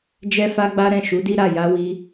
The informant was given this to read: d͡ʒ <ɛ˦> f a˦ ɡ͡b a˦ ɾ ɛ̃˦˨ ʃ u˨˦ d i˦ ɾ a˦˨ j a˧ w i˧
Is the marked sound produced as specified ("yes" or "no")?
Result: yes